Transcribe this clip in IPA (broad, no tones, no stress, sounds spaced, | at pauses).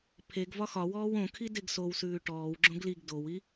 pʰ e ɡ v ɒ x ɒ w ɔː w õ kʰ i d e ɡ s o w s ʉː ʈ ɔː w ɡ͡ǁ õ ɡ l i ɡ d o w i